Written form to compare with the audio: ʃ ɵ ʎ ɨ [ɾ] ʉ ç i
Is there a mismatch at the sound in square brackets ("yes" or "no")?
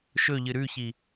no